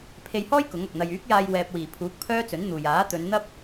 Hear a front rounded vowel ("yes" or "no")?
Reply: yes